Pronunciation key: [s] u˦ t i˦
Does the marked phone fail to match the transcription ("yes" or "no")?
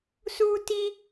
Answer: no